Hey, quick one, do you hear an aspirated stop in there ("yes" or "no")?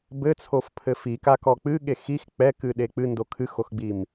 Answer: yes